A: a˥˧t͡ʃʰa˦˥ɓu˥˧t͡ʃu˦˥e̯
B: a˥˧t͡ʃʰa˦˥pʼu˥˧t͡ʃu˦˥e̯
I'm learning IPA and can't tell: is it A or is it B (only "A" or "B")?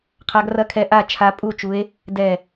B